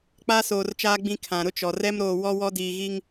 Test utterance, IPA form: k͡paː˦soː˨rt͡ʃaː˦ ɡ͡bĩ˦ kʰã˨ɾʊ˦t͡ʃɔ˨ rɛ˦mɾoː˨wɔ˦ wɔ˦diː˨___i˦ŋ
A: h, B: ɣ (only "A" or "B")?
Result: B